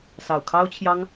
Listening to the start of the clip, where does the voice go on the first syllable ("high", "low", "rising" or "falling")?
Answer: low